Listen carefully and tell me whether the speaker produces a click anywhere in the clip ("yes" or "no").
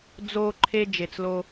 yes